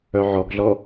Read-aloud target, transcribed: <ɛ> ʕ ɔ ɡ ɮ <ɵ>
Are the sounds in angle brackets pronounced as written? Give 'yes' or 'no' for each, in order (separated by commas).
no, no